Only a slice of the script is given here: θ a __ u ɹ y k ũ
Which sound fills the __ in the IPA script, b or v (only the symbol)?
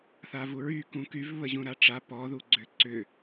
v